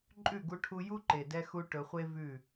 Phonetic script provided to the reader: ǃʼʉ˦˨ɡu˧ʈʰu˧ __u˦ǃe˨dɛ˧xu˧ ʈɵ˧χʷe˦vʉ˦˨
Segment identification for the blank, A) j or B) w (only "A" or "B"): A